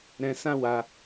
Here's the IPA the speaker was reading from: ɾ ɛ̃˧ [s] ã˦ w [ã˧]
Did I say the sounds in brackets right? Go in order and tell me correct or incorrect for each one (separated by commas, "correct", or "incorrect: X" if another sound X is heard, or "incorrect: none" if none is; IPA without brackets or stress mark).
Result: correct, incorrect: a˧